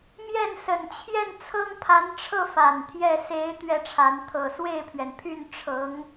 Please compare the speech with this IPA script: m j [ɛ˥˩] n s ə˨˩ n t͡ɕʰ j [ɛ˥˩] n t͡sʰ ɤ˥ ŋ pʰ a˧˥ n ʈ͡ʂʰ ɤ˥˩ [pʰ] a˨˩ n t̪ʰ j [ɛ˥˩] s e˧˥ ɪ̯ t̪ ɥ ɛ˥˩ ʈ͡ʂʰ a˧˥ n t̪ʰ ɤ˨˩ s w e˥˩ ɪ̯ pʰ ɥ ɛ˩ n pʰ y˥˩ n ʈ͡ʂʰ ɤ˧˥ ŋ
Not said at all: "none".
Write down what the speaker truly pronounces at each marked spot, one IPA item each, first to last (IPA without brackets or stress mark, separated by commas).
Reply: ɛ˥˩, ɛ˥˩, f, ɛ˥˩